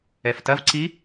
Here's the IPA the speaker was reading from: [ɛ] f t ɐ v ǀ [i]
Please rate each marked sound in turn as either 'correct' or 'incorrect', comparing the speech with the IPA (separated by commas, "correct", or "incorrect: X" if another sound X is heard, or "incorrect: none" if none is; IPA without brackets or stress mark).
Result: correct, correct